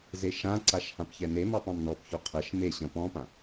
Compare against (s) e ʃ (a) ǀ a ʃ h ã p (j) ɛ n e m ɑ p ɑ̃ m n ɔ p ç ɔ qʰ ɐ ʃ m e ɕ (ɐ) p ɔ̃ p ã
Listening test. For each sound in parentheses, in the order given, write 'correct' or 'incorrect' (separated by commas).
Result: incorrect, incorrect, incorrect, incorrect